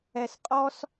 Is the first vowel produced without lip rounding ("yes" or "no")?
yes